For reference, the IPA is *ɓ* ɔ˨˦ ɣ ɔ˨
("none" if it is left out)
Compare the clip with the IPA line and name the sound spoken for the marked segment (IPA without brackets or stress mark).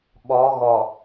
ɓ